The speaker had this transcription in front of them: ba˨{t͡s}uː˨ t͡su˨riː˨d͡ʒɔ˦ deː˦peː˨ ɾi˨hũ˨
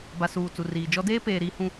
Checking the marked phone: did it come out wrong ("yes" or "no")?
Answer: yes